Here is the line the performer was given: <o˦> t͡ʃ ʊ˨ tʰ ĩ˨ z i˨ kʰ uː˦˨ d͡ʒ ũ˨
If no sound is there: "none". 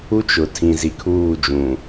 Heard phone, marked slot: u˦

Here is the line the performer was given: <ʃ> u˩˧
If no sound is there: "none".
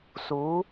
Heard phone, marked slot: s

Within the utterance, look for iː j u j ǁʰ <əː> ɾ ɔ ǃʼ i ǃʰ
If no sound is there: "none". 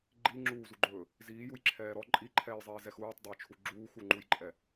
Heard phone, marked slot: ɛː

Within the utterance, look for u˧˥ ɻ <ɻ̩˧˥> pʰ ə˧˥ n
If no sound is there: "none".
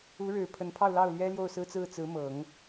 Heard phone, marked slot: ɻ̩˨˩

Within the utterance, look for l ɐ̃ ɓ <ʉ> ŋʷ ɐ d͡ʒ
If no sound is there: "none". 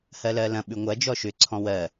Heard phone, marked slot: ʉ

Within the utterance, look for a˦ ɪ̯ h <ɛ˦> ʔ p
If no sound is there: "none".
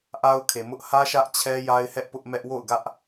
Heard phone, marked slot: ɛ˦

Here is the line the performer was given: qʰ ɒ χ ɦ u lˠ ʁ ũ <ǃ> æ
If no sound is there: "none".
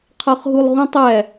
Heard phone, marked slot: tˤ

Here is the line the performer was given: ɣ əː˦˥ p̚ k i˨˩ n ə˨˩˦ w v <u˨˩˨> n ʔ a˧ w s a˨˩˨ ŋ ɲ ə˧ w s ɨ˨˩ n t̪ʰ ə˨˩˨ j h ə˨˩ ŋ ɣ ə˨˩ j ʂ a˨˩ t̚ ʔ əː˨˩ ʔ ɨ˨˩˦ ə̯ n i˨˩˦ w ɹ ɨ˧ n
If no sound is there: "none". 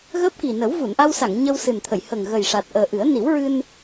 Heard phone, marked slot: u˨˩˨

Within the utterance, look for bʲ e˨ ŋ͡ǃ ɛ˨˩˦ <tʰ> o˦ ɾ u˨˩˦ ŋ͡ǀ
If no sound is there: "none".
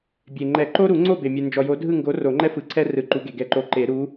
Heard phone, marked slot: ǃ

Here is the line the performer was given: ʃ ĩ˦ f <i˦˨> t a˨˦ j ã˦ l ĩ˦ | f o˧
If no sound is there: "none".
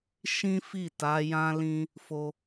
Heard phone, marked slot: i˦˨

